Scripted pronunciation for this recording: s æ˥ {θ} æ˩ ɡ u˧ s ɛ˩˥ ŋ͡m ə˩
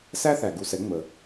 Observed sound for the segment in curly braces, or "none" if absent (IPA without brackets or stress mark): θ